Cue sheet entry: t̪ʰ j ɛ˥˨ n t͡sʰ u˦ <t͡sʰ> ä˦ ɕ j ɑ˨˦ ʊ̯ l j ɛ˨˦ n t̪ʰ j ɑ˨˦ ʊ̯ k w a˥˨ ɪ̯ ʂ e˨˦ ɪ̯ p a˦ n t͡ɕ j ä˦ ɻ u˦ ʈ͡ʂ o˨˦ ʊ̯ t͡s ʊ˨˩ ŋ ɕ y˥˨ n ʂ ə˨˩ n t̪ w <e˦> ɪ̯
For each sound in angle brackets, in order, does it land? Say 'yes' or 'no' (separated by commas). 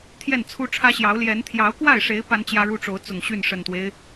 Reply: no, yes